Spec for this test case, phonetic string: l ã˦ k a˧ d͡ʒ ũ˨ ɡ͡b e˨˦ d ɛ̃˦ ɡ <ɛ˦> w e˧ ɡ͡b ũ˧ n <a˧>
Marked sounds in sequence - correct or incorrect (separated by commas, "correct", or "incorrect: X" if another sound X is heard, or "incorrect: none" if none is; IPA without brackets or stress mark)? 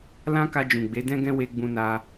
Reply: incorrect: ɛ̃˦, correct